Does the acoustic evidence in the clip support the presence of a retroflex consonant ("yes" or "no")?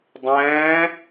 no